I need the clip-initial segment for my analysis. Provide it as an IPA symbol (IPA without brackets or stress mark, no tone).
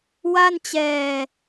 w